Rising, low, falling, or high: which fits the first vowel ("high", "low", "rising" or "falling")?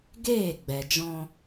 falling